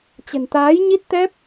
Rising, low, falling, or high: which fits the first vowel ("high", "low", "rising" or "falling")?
low